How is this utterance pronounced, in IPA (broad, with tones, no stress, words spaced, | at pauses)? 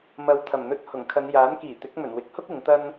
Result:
mɐ˨˧w t̪ʰɐ˨˩mn̪ɵ˧t̚ hʊ˨˩ŋkʰɐ˨˧n jaː˨˥nkiː˨˩t̪ɪ˨˥k̚ mɵ˨˩nwɪ˨˥k̚hʊ˥k̚ ɪ˨˧ŋt̪ɐ˥n